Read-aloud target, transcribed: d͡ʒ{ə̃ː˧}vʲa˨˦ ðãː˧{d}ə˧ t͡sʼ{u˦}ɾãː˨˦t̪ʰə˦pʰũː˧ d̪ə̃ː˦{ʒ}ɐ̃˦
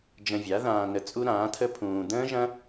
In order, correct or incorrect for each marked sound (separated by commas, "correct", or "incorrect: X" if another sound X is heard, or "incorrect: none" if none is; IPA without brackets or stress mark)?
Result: incorrect: ə̃˧, incorrect: n, correct, correct